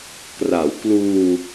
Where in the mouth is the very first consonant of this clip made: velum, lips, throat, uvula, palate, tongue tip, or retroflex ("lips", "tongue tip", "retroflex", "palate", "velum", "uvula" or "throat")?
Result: velum